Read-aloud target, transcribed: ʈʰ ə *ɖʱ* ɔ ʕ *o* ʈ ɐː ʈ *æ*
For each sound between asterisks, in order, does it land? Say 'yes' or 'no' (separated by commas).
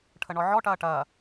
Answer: no, no, no